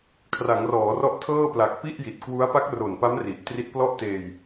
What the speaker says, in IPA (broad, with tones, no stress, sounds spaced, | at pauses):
kʰ r a˩˦ ŋ r ɔː˩˦ r ɔ˦˥ ʔ tʰ ɤː˥˩ p l a˨˩ k̚ p i˥˩ ʔ j i˨˩ t̚ k w u˦˥ a̯ p a˦˥ k̚ r o˨˩ n p a˦˥ m r i˨˩ ʔ t r i˦˥ t̚ p l ɔ˥˩ ʔ t eː˧ j